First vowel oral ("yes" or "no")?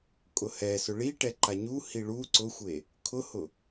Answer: yes